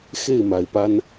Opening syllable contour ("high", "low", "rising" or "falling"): falling